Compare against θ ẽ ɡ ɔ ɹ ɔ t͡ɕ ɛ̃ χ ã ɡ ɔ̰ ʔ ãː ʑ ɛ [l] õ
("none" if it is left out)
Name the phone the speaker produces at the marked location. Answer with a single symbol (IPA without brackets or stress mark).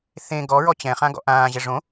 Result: ʐ